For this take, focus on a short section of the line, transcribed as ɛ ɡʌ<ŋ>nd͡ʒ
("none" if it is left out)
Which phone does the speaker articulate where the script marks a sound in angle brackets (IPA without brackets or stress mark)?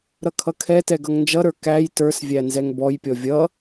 ŋ